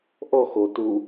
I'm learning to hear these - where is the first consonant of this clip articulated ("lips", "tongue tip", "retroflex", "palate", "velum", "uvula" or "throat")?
throat